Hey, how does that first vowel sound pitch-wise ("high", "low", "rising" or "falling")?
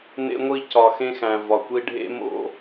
high